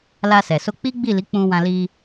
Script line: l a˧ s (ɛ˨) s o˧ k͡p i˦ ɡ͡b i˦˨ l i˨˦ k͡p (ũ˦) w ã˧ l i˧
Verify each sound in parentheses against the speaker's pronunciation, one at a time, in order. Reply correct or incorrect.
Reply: correct, incorrect: ũ˧

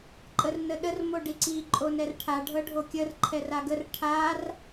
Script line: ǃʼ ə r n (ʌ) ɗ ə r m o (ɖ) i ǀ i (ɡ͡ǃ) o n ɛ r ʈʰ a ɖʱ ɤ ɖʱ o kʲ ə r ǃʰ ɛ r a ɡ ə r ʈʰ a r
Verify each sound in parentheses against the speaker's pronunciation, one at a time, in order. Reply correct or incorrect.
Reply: incorrect: ə, correct, incorrect: ǃʼ

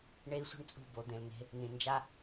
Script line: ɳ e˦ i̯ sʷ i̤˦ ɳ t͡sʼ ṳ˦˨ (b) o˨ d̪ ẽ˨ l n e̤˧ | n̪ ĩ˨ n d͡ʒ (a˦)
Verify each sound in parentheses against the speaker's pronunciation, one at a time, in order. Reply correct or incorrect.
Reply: correct, correct

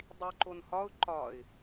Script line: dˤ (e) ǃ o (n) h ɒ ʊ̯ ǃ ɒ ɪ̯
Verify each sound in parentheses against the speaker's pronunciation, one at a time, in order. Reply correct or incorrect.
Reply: incorrect: i, correct

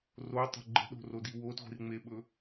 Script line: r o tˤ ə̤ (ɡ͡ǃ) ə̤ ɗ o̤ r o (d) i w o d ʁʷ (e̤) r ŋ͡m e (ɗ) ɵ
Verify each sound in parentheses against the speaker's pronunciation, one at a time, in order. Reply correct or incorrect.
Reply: correct, correct, incorrect: i̤, incorrect: ɓ

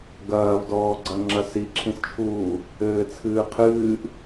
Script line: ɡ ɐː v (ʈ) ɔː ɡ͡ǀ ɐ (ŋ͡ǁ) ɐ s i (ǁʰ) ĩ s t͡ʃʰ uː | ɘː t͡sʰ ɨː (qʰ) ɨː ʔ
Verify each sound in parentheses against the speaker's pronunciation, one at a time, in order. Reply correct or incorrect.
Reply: incorrect: d, correct, correct, correct

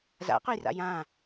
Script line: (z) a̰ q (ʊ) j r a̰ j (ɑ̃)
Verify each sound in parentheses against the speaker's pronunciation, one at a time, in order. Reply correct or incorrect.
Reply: correct, correct, incorrect: ã

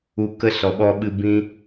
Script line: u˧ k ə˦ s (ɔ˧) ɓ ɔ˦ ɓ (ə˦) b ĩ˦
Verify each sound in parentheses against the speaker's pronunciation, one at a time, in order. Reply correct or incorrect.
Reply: correct, incorrect: ɨ˦

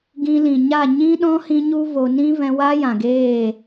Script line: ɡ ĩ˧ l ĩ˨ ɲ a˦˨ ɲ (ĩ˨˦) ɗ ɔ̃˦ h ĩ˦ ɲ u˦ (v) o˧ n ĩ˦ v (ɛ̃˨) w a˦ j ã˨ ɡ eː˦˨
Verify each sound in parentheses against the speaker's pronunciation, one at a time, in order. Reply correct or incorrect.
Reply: incorrect: ĩ˦, correct, incorrect: ɛ̃˧

